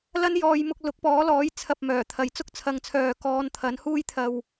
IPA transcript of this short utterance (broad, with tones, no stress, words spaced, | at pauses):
lɐ˥n jɔː˧jmʊ˧k̚ lʊ˨˥k̚pɔː˨˥lɔː˨˥j t͡sʰɐ˧p̚mœː˨˩t̪ʰɐ˨j t͡sʊ˥k̚t͡sʰɐ˨˧ŋt͡sʰœː˨ kɔː˧nt̪ʰɐ˨˥nhuː˥j t̪ʰɐ˧w